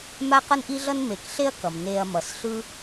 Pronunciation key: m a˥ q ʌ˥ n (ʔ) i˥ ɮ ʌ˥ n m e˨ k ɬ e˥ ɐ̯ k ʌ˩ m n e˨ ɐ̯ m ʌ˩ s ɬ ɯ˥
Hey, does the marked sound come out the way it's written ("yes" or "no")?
yes